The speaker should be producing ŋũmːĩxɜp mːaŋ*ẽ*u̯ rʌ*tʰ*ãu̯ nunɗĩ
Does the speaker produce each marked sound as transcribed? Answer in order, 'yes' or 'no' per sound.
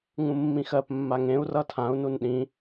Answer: yes, yes

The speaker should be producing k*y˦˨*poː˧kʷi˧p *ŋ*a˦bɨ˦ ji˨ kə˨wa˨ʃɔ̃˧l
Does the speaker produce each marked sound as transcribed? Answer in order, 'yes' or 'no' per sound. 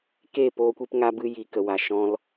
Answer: no, yes

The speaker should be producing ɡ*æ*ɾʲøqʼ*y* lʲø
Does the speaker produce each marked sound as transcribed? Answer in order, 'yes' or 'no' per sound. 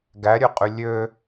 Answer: yes, yes

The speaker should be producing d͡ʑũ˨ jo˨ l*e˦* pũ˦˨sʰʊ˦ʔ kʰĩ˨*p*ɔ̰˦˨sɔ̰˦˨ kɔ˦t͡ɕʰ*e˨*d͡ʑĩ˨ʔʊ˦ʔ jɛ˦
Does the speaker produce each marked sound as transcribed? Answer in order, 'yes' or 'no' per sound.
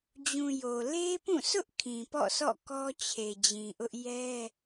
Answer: yes, yes, yes

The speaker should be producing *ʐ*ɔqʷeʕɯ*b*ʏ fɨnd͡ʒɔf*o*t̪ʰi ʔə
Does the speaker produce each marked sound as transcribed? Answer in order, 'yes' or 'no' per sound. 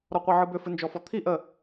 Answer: no, yes, no

